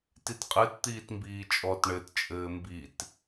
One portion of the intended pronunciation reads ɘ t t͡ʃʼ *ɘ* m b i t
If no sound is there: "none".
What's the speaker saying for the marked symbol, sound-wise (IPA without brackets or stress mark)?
ɘː